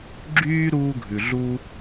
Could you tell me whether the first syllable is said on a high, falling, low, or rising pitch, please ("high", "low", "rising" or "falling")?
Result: high